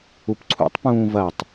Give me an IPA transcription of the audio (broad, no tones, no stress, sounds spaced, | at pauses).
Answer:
u p ǀʰ ṵ tˤ p ũː v ɐ tˤ